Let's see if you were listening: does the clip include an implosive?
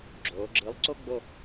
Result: no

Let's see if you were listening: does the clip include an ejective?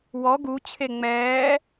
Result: no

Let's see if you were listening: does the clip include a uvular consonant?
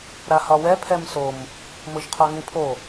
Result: yes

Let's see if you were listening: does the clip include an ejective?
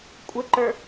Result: yes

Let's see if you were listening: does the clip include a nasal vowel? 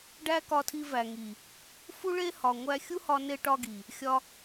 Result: no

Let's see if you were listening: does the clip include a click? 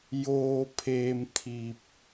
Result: no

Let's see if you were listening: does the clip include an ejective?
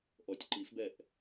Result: no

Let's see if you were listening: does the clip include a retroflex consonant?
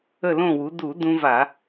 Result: no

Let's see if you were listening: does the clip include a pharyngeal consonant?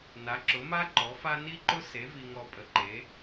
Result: no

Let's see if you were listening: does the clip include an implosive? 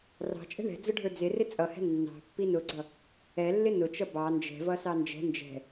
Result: no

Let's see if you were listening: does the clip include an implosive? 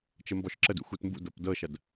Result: no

